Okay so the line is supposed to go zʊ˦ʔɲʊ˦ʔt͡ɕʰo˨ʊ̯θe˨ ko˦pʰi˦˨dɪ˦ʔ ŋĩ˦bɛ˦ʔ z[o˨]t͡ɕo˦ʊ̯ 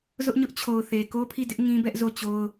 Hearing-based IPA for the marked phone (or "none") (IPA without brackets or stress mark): o˦˨